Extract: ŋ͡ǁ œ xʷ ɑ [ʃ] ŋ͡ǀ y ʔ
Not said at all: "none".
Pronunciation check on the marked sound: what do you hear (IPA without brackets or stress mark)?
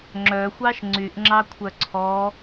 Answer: ʃ